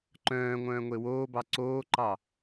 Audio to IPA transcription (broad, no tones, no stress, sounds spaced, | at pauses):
ǃ œ̃ː ŋʷ œ̃ː ŋʷ e w oː b ɑ ǀ oː ǃ ɑ